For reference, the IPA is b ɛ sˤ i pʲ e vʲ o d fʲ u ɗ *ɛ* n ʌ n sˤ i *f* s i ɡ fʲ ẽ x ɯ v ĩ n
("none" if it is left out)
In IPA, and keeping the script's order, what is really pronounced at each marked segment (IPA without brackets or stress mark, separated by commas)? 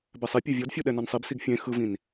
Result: ɛ, b